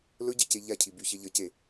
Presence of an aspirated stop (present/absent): present